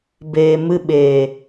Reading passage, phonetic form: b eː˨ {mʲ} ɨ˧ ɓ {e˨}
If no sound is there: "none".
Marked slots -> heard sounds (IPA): m, eː˨

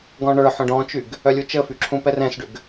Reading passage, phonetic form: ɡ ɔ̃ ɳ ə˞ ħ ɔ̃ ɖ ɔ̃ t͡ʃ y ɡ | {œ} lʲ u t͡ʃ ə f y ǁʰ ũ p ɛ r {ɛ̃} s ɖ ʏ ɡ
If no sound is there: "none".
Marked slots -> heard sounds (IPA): œ, ɛ̃

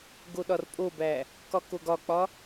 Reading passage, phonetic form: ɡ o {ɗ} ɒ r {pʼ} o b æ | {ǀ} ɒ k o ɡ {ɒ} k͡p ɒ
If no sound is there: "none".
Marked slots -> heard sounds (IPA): ɗ, pʼ, k, ɒ

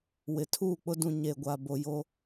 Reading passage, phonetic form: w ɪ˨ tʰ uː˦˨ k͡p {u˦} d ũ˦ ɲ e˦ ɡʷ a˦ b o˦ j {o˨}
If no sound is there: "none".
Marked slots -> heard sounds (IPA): ʊ˦, o˦

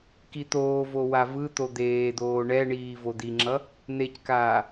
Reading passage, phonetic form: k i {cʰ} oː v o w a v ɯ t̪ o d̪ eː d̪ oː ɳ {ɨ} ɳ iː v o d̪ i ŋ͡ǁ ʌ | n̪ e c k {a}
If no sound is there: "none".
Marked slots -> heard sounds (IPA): t̪, ɛ, aː

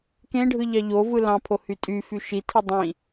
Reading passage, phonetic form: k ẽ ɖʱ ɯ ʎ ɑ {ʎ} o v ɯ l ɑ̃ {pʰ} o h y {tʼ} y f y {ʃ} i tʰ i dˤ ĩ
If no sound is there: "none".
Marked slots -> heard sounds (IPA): ʎ, pʰ, tʼ, ʃ

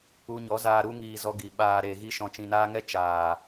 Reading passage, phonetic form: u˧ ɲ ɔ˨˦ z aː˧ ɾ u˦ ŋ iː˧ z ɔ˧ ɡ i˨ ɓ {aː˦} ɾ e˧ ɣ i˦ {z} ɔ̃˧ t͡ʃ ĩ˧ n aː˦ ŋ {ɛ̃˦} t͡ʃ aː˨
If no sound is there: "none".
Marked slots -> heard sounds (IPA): aː˧, ʃ, ɛ˦

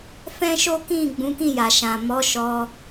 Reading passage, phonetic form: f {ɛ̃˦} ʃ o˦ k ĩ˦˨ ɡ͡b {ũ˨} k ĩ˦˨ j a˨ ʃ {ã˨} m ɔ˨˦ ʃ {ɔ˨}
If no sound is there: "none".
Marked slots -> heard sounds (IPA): ɛ̃˦, ũ˨˦, ã˨, ɔ˧

